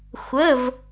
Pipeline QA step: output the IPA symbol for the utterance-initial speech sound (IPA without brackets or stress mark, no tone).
xʷ